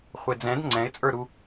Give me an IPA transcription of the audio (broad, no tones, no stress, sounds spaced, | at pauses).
χʷ e d͡z ɛ̃ d ŋ͡ǀ ɛ̃ ɪ̯ t͡sʼ ə˞ ɾ u